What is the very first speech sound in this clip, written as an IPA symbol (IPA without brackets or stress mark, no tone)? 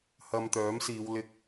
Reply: h